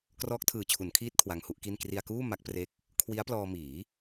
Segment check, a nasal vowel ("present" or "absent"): absent